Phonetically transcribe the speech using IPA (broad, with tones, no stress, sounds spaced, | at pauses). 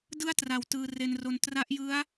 d ɯ˥˩ a̯ t r a˨˩ w t ɯː˧ r e˧ n r o˧ n t r a˦˥ ʔ j ɯ˦˥ a̯